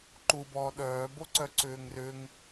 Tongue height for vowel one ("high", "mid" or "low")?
high